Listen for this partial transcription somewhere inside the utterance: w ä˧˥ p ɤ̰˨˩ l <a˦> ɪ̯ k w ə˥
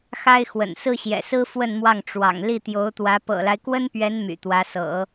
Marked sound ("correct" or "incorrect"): correct